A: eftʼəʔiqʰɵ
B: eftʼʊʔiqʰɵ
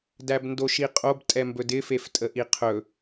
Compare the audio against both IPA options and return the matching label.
A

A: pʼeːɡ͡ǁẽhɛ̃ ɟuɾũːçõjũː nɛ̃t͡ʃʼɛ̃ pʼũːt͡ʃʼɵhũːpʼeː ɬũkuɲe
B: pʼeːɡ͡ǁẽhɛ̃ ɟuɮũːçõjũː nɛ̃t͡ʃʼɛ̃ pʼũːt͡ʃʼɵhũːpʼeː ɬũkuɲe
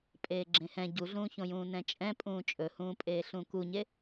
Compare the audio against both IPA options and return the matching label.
B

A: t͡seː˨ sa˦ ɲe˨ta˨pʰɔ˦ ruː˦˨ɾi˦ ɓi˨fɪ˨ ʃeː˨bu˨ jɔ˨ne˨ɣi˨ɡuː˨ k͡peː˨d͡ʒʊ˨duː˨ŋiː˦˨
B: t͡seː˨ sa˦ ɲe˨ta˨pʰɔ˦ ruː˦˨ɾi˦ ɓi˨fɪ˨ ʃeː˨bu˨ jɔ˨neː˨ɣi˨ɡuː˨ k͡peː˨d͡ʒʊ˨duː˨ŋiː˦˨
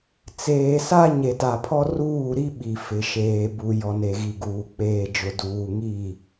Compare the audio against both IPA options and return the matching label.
A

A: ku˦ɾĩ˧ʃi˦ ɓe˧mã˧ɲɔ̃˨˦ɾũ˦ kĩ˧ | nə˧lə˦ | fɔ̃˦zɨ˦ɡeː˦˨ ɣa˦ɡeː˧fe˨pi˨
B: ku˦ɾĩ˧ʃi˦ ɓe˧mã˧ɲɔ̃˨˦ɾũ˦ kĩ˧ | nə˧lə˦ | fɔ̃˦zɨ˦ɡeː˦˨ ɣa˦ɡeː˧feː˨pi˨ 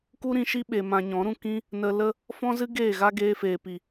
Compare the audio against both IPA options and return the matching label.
B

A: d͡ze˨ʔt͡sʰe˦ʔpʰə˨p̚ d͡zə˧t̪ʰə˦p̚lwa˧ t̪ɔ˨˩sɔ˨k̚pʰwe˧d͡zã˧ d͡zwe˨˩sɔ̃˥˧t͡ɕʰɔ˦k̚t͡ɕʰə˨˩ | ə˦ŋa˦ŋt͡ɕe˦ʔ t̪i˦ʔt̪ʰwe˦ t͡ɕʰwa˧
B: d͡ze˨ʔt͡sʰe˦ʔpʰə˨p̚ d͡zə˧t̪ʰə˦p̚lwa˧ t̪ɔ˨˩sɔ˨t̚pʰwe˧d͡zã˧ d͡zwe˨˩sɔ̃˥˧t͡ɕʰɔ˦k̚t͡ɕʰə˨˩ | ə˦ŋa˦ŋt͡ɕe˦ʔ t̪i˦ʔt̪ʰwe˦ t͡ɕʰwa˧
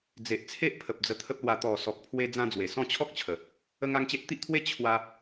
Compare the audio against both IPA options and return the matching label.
A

